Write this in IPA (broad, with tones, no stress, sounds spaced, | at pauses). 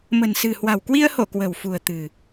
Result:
m ə̤˨˩ n s ɨ̤˨˩ h w a̤˨˩ w k w i˧ ə̯ h o˧˩ k w ə̤˨˩ w f ṳ˨˩ ə̯ t̪ ɨ̤˨˩